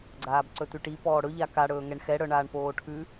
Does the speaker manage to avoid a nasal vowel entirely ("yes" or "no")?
yes